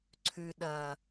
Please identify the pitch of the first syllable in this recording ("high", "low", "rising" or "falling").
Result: low